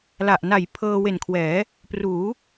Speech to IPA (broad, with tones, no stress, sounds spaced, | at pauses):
l a˨˩ ʔ n a˨˩ j pʰ ɤː˧ w e˨˩ n kʰ w ɛː˩˦ | p r uː˩˦